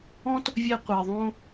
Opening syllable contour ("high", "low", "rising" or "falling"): high